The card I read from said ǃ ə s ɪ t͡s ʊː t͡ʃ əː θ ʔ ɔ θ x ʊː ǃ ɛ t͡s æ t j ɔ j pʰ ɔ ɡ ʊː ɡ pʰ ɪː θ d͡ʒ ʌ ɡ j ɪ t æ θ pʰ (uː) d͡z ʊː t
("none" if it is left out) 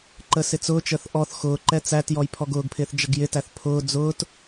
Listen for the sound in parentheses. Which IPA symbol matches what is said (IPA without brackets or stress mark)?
ʊː